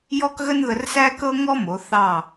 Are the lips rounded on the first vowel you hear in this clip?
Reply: yes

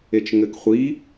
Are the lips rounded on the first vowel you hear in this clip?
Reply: no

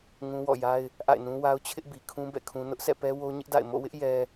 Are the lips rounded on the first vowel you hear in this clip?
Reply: yes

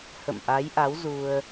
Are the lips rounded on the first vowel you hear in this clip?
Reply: no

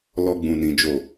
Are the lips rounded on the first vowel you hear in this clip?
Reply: yes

